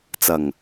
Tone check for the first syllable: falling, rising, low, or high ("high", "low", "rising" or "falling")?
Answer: low